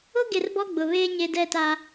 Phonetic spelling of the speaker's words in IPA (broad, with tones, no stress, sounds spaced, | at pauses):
ʊ˦ ɡ e˨ r b ɔ˦ ɡ͡b ʊ˨ β eː˦ ɲ e˦ d ɛ˦˨ t a˦